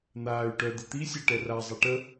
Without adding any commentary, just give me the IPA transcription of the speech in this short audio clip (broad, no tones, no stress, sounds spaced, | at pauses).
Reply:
n̪ aː y̯ ʈ œ d̪ ə t̪ i sʲ a ʈ ɛ r a zˤ ɛ ʈ ə